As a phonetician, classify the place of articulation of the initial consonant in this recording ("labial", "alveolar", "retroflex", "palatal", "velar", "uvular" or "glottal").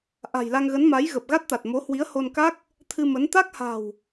glottal